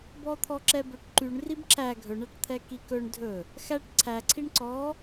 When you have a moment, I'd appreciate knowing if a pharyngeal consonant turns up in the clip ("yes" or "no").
no